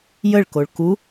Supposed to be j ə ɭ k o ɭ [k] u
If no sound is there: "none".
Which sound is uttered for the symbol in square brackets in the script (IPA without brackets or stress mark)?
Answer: k